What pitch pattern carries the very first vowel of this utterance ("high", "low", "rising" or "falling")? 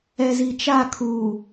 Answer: low